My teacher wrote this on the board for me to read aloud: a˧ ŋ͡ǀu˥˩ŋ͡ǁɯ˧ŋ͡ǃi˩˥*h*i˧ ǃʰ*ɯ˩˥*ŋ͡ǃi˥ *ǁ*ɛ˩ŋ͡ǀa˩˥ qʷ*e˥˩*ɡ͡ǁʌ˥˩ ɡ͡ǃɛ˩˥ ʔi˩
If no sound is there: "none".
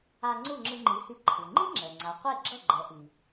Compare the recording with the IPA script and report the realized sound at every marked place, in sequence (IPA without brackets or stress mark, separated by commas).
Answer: h, ɯ˩, ŋ͡ǁ, e˥˩